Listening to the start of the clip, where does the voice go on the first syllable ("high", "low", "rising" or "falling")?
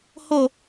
falling